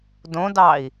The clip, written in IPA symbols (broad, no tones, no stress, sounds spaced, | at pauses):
d õ d ɑ i̯